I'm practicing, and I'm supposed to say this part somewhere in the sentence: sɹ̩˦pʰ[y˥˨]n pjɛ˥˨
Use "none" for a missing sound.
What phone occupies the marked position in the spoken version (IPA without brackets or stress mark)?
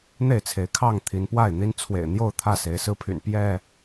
y̰˨˩